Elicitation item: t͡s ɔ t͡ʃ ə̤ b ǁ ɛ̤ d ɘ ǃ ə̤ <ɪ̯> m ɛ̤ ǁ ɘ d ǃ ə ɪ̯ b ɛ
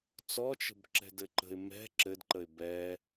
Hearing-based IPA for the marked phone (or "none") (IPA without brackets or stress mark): ɪ̯